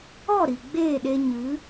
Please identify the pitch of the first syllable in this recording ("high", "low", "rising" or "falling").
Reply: falling